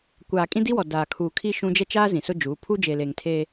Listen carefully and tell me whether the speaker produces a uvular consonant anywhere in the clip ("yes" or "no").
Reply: no